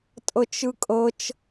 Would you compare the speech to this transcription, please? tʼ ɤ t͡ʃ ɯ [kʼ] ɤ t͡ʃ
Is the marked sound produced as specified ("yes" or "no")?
yes